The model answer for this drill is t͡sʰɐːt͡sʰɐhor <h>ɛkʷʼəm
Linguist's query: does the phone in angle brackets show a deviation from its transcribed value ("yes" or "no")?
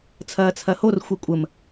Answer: yes